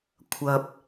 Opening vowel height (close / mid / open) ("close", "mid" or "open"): open